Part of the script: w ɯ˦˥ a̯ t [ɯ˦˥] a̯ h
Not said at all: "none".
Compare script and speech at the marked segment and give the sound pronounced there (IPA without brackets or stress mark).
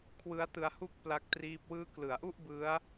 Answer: ɯ˧